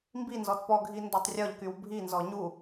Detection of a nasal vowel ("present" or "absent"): absent